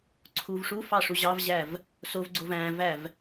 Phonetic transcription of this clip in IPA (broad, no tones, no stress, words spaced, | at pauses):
ǀʰuvʂufɑ ʂuʑɑvʑæv | sovɡ͡ǀov æ̃væv